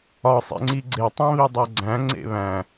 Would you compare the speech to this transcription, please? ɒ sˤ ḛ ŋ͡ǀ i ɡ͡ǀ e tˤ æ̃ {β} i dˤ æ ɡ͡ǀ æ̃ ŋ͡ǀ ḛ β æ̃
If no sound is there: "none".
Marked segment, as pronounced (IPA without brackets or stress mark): β